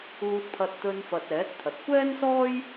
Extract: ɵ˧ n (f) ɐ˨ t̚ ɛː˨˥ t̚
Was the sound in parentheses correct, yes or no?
yes